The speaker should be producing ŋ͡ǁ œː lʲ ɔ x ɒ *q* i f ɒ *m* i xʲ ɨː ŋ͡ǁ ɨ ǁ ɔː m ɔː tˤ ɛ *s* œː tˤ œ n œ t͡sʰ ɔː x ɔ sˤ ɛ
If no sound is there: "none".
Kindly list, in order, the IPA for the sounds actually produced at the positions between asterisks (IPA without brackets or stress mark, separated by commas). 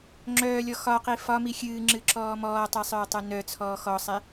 q, m, sˤ